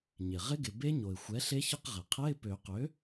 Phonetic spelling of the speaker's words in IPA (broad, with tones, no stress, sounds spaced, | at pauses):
ɲ ɪ˩ ʁ ɪ˧˥ ɡ ɪ˩ b e˧˥ ɲ o˩ ɪ̯ xʷ ɛ˩˥ ɬ e˧˥ ç ə˧˥˧ q ʁ ɛ˩ qʰ ɛ˧˥˧ ɪ̯ p ø˨˩˦ q ø˩˥